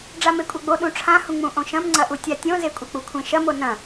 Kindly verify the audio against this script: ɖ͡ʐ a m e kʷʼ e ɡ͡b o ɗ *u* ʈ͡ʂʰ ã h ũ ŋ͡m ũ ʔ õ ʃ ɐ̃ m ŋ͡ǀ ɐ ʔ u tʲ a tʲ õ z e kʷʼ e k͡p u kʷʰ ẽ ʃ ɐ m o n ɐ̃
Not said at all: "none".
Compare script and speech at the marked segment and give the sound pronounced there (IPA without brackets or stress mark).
ũ